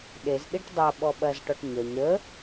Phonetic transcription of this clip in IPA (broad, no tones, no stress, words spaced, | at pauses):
ɗezɗiʈ dˤɐ ɓɔɓɐzʈɔʈ ɲɐɲ ɾə